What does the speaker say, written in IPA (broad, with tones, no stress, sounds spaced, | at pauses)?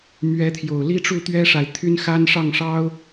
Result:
m ɥ ɛ˨˦ t̪ʰ j o˨˩ ʊ̯ l i˦ ʈ͡ʂ u˥˨ t̪ ɥ ɛ˦ ʂ a˨ ɪ̯ t̪ʰ y˦ n x a˦ n ʂ ɑ˥˨ ŋ ʂ ɑ˦ ʊ̯